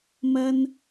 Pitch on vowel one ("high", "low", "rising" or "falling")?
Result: high